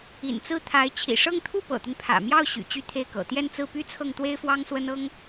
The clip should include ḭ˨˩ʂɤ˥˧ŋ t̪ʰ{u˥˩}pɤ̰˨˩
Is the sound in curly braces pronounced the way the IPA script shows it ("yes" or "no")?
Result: yes